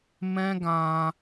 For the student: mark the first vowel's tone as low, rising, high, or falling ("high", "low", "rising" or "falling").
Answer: high